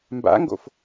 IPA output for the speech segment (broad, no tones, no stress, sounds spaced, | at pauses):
m b a̰ ŋ ɡ o̰ f